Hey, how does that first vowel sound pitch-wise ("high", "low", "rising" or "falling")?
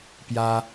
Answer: high